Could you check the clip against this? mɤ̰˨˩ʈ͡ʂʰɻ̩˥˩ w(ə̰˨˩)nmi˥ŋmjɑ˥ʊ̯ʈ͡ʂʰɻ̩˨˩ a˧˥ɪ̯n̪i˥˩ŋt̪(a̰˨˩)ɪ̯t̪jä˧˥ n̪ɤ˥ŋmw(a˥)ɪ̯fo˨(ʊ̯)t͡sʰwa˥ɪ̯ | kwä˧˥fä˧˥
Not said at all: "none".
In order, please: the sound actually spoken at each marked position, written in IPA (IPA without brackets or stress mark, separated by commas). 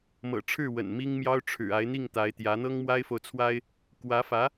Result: ə̰˨˩, a˧˥, a˥, ʊ̯